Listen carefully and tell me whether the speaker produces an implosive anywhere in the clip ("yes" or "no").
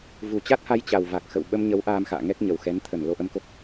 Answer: yes